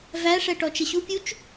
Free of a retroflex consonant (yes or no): no